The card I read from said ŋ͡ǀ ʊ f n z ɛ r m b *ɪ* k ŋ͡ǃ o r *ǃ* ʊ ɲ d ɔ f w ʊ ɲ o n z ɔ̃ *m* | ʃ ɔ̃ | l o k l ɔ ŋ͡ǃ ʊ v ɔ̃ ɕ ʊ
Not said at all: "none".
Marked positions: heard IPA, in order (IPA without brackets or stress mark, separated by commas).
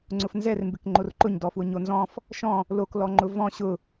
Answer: ɪ, ǃ, f